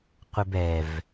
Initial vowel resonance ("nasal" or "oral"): oral